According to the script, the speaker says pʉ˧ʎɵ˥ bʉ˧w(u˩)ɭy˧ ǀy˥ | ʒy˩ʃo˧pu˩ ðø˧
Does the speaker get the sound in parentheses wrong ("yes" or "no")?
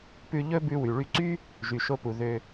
yes